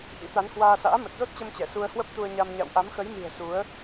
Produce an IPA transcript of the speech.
ʔ ḭ˧˥ t̪ a˨˦ n h w aː˧ s a̰ː˧˥ m ə˨˩ t̚ z o˦˥ t̚ t͡ɕ ə˧ m t͡ɕ ɛ˧˩ s u˧ ə̯ h w ə˦˥ p̚ t̪ u˧ ə̯ ɲ a˧ m ɲ a̰˧˨ w ʔ a˨˦ m x ə˨˦ j m i̤˨˩ ə̯ s u˨˦ ə̯

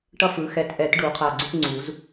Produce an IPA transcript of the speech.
ʈ ʌ˦ f ɯ˩˥ x ɛ˨˩˦ t ʔ ɛ˨˩˦ t ɖ u˨˩˦ qʰ a˧˩ ɡ͡ǀ u˦ ʈ ŋ͡ǀ u˨˩˦ z

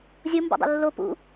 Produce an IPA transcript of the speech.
zʲ o m b o̰ dˤ ṵ lː o p ṵ

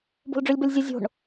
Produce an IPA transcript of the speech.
b o̤ l ɖ͡ʐ ʉ lʲ b ɐ lʲ zʲ ɨ zʲ o̤ ɳ

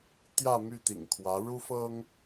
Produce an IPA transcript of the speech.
t̪ j ä˥˨ m y˥˨ t̪ ḭ˨˩ ŋ kʰ w ä˨˦ ɻ u˦ f ɤ˦ ŋ

